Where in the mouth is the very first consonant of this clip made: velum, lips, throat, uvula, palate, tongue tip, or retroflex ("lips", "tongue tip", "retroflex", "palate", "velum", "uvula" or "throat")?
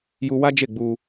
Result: palate